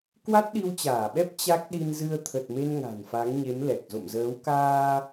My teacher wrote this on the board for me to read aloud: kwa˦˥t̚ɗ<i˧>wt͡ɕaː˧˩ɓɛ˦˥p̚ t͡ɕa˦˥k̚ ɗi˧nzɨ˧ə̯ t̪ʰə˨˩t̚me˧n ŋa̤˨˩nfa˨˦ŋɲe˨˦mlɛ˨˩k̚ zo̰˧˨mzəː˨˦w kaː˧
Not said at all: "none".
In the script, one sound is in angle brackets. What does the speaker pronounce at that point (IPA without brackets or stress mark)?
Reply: i˧